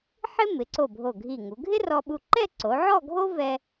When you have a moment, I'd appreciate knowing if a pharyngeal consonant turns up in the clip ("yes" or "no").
yes